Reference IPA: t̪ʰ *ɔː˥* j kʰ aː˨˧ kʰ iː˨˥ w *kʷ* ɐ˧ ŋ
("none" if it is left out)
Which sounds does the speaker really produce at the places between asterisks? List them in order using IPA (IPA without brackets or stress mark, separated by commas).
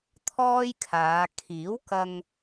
ɔː˥, k